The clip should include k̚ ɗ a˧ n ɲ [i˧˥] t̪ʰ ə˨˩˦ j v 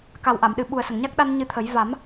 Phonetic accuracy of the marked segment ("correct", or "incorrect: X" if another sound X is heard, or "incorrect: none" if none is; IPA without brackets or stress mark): incorrect: ɨ˧˥